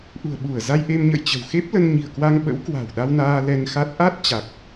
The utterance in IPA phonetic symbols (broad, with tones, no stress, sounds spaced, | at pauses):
ʔ ṳ˨˩ ə̯ ɓ u˧˩ ə̯ z a˧ j ʔ e˧ m ɲ ə̰˧˨ j t͡ɕ ə̤˨˩ w x e˦˥ p̚ l ə˧ n ɲ i̤˨˩ ə̯ k w a˧ ŋ ɓ ə̰˧˥ w k w a̤˨˩ w ɗ a˧ w n aː˧ l ɛ˧ n x a˦˥ t̚ ʔ a˦˥ t̚ t͡ɕ a˨˩ k̚